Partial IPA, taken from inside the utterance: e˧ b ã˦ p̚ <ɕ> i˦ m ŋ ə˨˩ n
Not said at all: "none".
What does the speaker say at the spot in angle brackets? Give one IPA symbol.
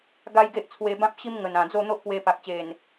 ɕ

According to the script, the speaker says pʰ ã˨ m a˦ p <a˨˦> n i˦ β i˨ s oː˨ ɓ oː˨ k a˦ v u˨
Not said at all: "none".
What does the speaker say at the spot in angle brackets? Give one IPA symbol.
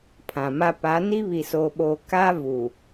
a˨˦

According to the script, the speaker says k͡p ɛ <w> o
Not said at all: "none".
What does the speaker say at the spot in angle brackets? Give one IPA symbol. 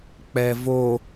v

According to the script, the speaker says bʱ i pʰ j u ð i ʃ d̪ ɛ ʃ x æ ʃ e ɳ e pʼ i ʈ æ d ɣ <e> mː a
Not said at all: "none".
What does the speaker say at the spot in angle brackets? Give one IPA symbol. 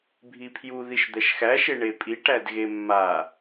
e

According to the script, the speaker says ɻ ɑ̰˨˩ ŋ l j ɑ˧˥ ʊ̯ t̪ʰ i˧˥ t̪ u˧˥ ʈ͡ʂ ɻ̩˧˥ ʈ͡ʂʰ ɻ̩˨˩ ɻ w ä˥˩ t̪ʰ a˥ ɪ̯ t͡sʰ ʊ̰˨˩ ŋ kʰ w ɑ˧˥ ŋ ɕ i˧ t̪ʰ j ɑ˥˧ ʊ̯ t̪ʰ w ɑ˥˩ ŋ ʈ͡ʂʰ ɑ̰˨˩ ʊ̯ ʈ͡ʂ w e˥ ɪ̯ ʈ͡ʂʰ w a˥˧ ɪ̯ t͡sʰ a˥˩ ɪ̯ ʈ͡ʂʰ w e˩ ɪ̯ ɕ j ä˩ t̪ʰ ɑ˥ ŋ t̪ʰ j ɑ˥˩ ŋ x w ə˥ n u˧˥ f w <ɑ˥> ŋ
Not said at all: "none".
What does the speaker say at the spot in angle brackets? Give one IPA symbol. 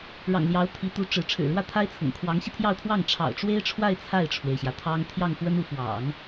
ɑ̰˨˩˦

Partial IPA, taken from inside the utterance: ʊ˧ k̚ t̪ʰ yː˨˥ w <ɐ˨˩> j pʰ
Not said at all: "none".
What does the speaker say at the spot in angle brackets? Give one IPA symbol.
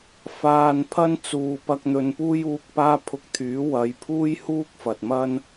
ɐ˨˧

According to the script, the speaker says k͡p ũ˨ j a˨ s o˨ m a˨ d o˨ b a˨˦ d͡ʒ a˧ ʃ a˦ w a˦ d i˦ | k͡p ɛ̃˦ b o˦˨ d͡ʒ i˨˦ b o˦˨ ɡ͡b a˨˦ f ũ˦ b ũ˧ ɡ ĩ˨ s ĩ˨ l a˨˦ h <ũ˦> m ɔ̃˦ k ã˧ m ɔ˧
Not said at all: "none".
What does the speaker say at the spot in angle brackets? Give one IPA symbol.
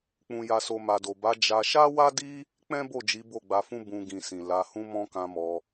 ũ˦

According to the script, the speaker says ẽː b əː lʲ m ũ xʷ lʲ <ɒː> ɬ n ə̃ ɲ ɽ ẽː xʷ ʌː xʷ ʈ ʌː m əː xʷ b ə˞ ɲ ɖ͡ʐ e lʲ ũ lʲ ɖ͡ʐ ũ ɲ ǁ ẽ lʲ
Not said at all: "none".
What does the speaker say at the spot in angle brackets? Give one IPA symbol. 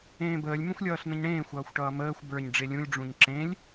ʌː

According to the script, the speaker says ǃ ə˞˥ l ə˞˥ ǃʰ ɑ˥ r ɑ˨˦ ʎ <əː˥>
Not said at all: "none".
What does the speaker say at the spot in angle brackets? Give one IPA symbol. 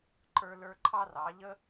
ə˥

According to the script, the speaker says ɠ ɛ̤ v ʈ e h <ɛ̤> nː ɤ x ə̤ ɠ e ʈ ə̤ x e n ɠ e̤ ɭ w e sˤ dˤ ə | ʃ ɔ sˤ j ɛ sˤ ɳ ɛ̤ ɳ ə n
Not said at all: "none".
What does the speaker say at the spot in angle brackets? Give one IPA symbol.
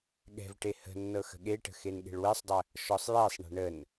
ə̤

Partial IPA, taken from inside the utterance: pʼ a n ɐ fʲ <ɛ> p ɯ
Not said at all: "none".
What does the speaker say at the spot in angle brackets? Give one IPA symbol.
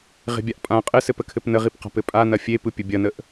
e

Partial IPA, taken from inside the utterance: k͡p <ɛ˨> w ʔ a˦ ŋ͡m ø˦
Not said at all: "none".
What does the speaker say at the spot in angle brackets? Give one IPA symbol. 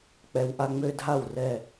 ɛ˧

